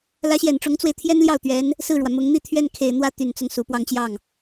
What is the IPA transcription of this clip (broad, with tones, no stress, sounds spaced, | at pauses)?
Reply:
l ä˧˥ ɕ j ɛ˨˩ n ʈ͡ʂ ʊ˧˥ ŋ t͡s w e˧ ɪ̯ t̪ʰ j ɛ˥ n l j ɑ˥˩ ʊ̯ t̪ ɥ ɛ˧˥ n | s ɹ̩˥˩ ɻ w ä˩ m ʊ˧˥ ŋ n̪ i˥˧ t̪ʰ ɥ ɛ˥˩ n kʰ e˨˩ ɪ̯ n̪ w ä˥ t̪ y˨˩ n t͡s ʊ˦ ŋ s u˨˩ p w ɑ˥˧ ŋ t͡ɕ j ɑ˥˩ ŋ